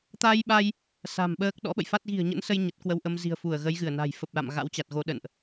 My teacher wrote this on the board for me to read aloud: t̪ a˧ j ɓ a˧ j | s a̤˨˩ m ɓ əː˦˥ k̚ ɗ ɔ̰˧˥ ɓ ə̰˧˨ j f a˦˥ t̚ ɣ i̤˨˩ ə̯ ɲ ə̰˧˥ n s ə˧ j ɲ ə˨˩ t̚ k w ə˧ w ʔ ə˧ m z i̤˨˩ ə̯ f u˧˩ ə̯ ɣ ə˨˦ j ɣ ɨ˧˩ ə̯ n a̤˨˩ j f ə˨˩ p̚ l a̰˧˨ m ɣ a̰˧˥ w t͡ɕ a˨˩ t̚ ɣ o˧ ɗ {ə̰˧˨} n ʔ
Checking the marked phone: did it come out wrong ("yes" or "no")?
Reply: no